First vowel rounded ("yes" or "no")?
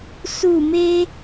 yes